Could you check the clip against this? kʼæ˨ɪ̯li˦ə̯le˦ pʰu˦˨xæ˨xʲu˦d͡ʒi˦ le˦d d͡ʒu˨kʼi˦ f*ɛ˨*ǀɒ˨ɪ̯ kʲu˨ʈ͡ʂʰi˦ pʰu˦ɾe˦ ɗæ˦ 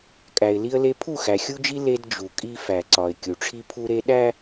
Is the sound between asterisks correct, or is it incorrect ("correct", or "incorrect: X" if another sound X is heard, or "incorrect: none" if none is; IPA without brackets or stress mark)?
incorrect: æ˨